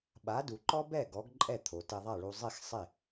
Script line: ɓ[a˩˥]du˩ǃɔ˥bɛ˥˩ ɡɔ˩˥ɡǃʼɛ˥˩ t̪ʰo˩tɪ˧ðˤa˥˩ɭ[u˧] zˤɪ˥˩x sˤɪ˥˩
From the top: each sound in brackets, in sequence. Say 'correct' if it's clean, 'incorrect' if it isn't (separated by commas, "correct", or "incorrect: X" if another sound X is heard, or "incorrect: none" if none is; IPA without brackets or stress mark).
correct, correct